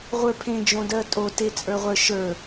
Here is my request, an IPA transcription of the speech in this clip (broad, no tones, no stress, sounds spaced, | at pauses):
ʁʷ ə˞ pʰ ẽ d͡ʒ õ d ɜ tʼ o t e t͡sʼ ə˞ ʁʷ ə˞ ʃ ə˞